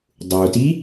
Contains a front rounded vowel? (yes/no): no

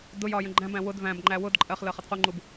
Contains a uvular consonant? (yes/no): yes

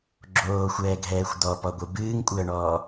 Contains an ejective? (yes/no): yes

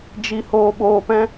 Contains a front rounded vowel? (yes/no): no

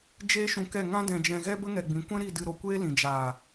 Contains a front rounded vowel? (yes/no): no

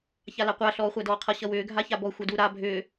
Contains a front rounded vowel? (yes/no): yes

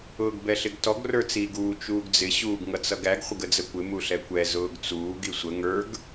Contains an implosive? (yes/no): no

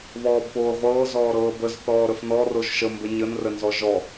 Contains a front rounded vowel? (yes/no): no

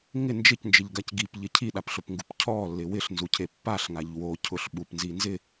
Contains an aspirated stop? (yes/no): yes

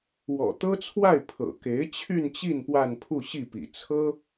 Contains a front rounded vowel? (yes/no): yes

